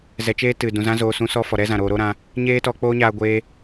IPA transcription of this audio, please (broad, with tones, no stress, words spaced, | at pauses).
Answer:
zɛ˧t͡ʃeː˦tɨ˨ dũ˨zã˦ zoː˧sũ˦sɔ˦ fɔ˨ɾɛ˦zã˨ɾoː˧ ɾo˦ɾã˧ | ɲeː˦tɔ˧ k͡poː˦ɲaː˧ɡʷeː˧